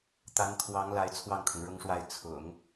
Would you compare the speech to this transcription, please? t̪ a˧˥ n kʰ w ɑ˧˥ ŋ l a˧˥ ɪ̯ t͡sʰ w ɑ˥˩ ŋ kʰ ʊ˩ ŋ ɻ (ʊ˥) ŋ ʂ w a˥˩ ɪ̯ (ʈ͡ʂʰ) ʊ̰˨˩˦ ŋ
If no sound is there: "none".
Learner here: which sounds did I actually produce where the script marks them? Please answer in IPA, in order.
ʊ˥, t͡sʰ

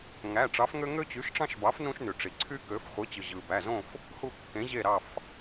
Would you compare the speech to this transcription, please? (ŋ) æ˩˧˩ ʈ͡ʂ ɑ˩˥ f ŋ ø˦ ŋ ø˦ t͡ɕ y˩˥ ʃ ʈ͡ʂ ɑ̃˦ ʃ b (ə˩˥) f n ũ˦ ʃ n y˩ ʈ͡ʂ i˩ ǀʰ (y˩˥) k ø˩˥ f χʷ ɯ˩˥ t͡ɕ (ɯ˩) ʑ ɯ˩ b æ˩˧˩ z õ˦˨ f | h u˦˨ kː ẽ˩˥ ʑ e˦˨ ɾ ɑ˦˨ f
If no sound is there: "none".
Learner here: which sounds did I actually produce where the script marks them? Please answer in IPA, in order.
ŋ, ɑ˩˥, y˦, ɯ˩

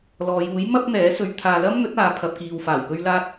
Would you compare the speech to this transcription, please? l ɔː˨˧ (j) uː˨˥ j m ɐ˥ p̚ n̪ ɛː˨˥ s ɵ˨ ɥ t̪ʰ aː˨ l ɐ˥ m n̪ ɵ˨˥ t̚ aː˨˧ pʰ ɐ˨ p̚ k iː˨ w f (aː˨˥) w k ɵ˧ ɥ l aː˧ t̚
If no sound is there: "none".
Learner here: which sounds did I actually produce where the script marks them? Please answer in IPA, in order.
j, aː˨˩

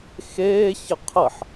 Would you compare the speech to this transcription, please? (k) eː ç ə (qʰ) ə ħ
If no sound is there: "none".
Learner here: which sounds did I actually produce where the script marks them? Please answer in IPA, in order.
x, qʰ

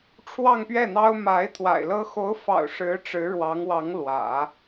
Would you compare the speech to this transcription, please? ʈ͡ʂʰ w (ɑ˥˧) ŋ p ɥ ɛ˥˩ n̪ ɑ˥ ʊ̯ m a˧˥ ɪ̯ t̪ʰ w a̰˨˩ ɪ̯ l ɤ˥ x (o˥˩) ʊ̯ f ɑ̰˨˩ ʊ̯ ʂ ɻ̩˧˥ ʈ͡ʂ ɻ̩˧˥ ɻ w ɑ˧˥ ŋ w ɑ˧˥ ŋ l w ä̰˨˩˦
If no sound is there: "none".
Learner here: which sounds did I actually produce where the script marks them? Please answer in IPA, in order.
ɑ˥˧, o˧˥

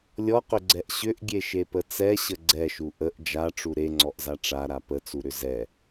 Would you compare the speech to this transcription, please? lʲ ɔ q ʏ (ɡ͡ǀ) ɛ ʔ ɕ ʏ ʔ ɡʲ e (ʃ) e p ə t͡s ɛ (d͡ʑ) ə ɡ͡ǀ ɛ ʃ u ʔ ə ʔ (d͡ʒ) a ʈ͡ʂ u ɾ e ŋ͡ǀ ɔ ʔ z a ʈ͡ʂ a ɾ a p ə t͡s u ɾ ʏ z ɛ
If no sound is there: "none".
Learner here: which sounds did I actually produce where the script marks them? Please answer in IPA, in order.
ɡ͡ǀ, ʃ, ɕ, d͡ʒ

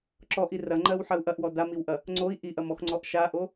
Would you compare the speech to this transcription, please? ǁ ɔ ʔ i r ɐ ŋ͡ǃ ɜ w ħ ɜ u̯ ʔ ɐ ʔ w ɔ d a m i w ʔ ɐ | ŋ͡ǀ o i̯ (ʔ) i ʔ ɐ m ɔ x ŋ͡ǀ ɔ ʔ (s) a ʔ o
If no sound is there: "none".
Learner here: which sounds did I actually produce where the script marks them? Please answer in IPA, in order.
ʔ, ʃ

